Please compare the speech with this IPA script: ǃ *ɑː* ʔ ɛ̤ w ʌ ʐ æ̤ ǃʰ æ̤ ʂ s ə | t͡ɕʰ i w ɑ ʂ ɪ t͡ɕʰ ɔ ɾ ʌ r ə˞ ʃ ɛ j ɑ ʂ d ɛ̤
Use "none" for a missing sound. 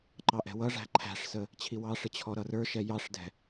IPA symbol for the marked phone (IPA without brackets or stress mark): ɑ